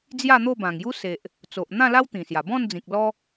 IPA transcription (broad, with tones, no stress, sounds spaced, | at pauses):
d͡z j a˥˧ n̪ o˥˧ b ã˨˩ ŋ j u˦ s e˨ ʔ | t͡s o˨ ʔ n̪ ã˥˧ l a˦ w t̪ ĩ˨˩ s j a˨˩ b ɔ̃˥˧ n d͡z ĩ˨ k̚ l ɔ˦